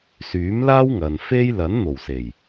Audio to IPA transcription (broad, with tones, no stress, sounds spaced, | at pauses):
s yː˨˥ m l aː˥ w ŋ ɐ˨ n f e˥ j l ɐ˨˥ n n̪ o˨˩ w s e˨˩ j